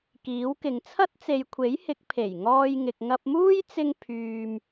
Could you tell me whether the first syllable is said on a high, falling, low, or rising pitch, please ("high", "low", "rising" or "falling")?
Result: rising